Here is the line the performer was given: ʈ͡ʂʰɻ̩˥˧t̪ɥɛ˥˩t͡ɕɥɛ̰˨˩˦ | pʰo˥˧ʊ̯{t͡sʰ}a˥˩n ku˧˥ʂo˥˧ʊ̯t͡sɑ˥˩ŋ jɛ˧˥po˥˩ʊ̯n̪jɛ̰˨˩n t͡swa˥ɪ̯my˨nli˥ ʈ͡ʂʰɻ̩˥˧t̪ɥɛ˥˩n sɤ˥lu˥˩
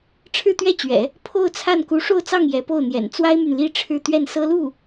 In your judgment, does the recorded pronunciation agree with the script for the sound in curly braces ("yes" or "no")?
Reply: yes